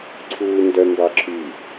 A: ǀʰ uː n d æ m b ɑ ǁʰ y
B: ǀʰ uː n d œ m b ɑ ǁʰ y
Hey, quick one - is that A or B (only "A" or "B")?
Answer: B